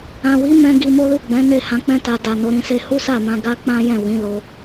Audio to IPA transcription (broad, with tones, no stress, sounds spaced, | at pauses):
ã˨ w i˨˦ m ɛ̃˧ ɡ i˧ m o˦ l u˦˨ ɡ͡b ɛ̃˨˦ n e˦˨ h ã˨˦ k͡p ɛ̃˦ t a˧ d a˨ n o˨˦ ɾ ĩ˧ s e˦ h u˦ s a˦˨ m ã˧ ɡ a˦ k͡p ã˦ j ɛ̃˦˨ w ĩ˨˦ l o˦